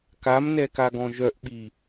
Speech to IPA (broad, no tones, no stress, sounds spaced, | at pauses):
k a m n ɛ k a ɡ ɔ̃ ʒ œ ʔ ɓ i